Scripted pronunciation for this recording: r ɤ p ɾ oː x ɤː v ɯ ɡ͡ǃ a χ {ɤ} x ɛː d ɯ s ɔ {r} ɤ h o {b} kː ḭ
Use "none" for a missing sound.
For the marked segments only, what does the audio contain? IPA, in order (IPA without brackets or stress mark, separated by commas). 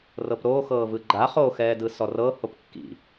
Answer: o, r, p